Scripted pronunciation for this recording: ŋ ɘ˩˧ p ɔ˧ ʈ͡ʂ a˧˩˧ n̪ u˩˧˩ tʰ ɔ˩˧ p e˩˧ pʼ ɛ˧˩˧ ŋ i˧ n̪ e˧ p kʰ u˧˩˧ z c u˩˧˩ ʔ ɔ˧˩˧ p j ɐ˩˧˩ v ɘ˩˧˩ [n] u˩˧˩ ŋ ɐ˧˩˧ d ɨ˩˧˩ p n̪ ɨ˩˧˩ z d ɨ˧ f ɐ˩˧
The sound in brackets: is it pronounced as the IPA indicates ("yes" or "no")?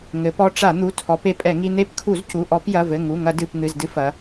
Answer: no